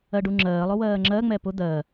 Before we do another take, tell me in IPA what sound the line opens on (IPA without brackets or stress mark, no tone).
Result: ɜ